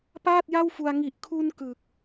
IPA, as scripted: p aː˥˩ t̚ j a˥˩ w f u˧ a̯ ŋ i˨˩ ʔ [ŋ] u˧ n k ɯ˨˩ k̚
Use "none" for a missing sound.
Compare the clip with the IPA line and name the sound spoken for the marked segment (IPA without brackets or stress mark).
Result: kʰ